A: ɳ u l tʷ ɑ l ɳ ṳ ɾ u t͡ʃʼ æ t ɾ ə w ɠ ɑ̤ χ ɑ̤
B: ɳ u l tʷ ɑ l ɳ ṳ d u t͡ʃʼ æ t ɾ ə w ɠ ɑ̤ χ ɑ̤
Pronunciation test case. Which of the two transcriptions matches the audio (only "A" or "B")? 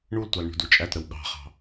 B